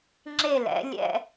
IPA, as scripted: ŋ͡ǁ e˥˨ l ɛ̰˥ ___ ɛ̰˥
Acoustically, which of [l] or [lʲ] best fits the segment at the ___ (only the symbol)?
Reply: lʲ